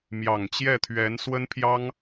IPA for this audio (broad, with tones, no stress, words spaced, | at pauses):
mjɑ˨˩ŋt͡ɕjɛ˥˩t̪ʰɥɛ˧˥n swə˥npʰjɑ˥ŋ